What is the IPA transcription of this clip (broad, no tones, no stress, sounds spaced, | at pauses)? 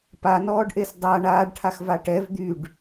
p a n ɔː ɖ ʔ e s dˤ a ɳ aː ɖ ʈʰ a x v a ʈ ɛ v d̪ y ɖ